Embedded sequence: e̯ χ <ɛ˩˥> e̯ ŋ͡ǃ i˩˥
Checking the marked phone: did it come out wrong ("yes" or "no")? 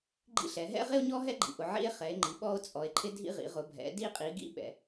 no